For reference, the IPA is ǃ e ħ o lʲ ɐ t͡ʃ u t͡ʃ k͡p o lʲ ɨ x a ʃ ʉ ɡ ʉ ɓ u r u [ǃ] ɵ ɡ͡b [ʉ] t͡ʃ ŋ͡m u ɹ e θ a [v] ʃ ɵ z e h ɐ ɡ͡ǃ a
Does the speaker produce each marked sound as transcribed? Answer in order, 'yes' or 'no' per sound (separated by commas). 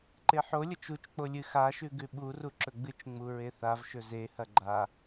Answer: no, no, yes